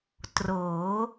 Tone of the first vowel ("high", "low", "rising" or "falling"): rising